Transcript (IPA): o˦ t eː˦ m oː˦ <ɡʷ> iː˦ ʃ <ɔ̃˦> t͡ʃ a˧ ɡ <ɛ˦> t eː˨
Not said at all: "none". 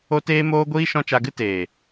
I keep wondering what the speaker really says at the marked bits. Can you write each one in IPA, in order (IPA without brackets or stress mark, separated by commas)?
ɡʷ, ɔ̃˦, ɨ˦